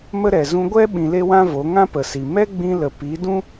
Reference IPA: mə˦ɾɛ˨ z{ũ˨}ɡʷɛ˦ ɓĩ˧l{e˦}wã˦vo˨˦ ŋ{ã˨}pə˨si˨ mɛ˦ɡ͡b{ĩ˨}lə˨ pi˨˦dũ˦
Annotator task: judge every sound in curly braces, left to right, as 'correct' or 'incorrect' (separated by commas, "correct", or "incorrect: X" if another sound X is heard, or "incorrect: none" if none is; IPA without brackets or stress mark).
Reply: incorrect: ũ˧, correct, incorrect: ã˦, incorrect: ĩ˧